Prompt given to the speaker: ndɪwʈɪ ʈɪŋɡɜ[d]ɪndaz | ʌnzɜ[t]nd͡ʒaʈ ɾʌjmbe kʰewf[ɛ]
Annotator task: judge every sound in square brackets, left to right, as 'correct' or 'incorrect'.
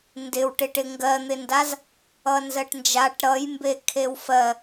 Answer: incorrect: n̪, incorrect: ʈ, incorrect: ɜ

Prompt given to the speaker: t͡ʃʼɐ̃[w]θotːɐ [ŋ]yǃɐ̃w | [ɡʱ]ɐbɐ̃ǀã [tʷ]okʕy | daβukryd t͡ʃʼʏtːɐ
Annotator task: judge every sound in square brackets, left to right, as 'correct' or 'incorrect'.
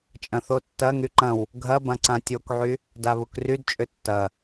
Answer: incorrect: none, correct, correct, incorrect: tʲ

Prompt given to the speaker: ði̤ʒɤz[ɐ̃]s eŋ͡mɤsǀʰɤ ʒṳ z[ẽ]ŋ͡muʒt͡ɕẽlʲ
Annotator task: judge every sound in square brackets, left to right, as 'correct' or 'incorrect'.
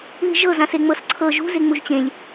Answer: incorrect: ã, incorrect: e

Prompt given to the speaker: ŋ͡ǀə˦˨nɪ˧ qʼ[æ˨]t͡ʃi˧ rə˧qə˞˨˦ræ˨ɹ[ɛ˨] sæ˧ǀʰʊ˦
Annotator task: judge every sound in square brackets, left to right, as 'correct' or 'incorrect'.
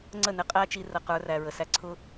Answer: incorrect: æ˦, incorrect: ə˨

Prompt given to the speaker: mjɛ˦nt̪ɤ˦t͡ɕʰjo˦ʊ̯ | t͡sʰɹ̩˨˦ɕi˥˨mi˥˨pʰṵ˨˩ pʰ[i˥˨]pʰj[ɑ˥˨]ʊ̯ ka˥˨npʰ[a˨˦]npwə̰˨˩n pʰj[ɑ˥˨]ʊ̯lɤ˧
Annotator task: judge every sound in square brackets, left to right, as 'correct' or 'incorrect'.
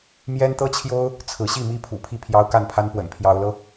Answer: correct, incorrect: ɑ˦, incorrect: a˦, incorrect: ɑ˨˦

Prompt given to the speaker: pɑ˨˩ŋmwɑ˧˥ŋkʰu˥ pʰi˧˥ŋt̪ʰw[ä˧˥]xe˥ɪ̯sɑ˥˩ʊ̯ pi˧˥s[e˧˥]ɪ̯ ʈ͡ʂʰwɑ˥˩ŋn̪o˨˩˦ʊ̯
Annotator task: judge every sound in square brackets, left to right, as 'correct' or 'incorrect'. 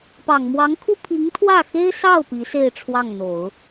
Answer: incorrect: ä˥˩, incorrect: e˥˧

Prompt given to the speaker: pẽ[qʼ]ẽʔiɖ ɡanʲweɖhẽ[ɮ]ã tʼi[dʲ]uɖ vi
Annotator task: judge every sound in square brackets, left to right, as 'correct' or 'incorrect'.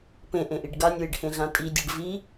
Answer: incorrect: ʔ, correct, correct

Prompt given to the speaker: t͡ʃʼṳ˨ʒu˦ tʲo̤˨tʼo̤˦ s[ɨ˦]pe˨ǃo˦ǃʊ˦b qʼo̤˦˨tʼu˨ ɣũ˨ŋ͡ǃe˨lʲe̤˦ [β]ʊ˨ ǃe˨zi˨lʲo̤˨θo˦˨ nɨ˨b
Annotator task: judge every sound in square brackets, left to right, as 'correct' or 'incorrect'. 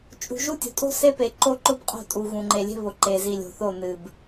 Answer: incorrect: e˦, correct

